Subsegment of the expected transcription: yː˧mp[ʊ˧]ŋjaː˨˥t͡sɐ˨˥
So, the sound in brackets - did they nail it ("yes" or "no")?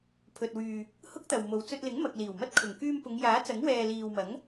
no